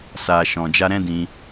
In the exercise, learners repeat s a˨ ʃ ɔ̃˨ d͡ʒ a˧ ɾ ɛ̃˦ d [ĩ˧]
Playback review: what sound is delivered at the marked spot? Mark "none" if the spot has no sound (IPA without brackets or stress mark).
ĩ˧